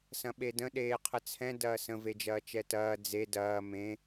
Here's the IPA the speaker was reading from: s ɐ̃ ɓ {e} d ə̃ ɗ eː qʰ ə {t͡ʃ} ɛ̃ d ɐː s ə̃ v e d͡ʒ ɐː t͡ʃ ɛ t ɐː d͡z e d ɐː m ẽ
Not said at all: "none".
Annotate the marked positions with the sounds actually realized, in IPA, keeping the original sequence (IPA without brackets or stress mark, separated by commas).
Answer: e, t͡sʰ